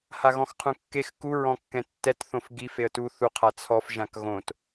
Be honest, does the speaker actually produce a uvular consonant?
yes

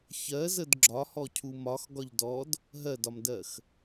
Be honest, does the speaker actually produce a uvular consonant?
no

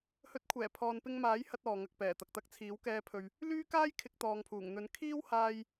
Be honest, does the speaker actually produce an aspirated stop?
yes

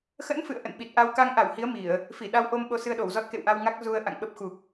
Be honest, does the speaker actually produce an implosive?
yes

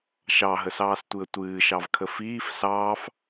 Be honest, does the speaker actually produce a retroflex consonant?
no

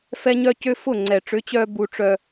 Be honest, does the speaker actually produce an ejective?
no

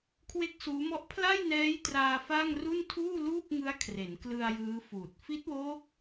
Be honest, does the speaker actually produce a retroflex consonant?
no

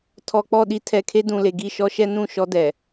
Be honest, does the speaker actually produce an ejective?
no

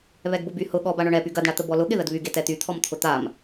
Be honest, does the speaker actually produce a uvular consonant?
no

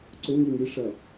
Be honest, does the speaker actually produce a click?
yes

